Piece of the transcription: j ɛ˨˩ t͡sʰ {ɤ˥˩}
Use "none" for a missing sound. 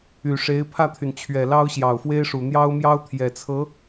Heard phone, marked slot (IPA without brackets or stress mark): ɤ˧˥